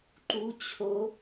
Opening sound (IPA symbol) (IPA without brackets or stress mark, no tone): ǃ